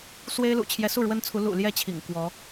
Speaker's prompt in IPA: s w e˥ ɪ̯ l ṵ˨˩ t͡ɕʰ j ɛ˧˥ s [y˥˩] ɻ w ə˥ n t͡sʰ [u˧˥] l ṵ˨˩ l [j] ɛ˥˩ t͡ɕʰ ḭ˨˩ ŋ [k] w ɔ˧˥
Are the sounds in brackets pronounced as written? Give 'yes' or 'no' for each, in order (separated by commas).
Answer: no, yes, yes, yes